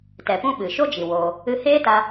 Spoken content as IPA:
tɛ˨pũ˦ ɓɨ˨ ʃo˦d͡ʒi˨ woː˧ | ɨ˧heː˦ta˧

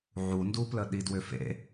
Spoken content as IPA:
ʕunduplə ɗidwʏfḛ

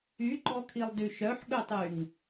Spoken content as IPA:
yɡ͡ǃɔkʰilˠdy ʃœħɠøtˤyŋ

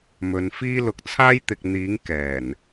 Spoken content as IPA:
mɵ˨˧nfiː˥ lʊ˨k̚t͡sʰaː˥jt̪ɪ˨k̚n̪iː˨˥ŋ kɛː˨˩n

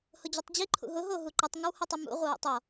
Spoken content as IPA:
hʊd͡ʑutˤd͡ʑi ǃʰṵɦʊ ɦoɦuǃitˤ ŋɪwhʊtˤʊmṵ ʁʷɪwṵtˤɔ

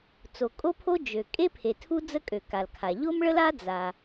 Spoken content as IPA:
t͡so˩kʼo˥pʰo˥ d͡ʒø˩ kʼe˥pʰe˩ tʰu˥d͡zə˥kʼø˩ ka˩lkʰa˩ ʎo˥mɭə˥la˥ d͡za˩

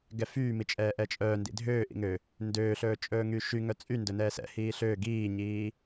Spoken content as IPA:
ɡɛfyːmit͡ʃʼɛː ʔɛt͡ʃʼœː ndḭdʱøː ʔḭŋø | ndøːɬɵː t͡ʃʼɵːŋyʃy ŋœt͡sʼy ndɵnɛːsɛ̰ hiːɬøː ɡiːɲiː

